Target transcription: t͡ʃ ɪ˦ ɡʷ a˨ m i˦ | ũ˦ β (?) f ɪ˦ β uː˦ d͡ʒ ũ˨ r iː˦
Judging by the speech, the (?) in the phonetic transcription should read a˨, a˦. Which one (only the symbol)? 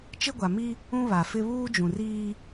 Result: a˨